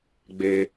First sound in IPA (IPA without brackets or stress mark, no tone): ɡ͡b